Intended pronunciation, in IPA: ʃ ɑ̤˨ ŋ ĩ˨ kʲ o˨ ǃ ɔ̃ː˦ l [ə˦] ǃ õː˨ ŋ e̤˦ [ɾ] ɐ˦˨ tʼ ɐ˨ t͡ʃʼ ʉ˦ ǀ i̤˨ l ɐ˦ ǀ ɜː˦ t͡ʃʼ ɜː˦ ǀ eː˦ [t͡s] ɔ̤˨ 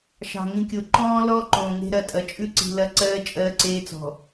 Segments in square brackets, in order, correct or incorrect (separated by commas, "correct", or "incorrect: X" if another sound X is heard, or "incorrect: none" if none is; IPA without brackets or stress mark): incorrect: ɔ˦, correct, correct